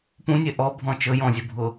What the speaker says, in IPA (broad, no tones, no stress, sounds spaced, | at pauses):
p ũ nʲ e ʔ ɔ bʱ ɔ̃ t͡ʃ ɵ j ɔ̃ zʲ ɵ bʱ ʊ